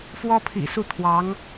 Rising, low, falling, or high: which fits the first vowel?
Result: high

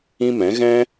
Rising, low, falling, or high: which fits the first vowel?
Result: high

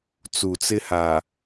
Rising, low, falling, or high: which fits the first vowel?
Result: low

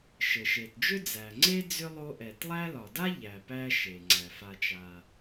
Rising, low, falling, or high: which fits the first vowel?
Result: low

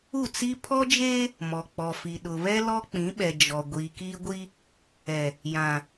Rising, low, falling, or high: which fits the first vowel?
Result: falling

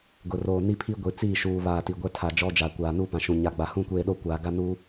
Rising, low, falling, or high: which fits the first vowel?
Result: low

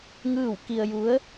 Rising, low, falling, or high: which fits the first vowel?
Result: falling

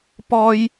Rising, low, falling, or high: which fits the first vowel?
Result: high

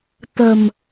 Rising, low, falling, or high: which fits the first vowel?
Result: low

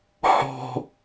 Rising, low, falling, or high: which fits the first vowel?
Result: low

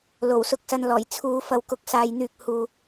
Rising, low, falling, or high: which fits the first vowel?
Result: low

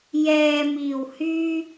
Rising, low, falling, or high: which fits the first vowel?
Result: low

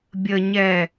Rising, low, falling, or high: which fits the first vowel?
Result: low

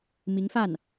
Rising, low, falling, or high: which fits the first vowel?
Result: rising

